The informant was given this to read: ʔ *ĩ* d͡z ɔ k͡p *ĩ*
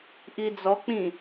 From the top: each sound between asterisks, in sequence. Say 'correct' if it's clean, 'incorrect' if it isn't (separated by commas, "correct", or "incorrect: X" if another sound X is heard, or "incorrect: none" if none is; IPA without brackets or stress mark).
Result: incorrect: i, correct